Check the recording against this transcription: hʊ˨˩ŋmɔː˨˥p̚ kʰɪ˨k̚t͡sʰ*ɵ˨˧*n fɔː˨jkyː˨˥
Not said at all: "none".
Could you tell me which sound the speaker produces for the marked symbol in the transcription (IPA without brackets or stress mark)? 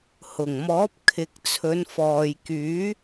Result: ɵ˨˧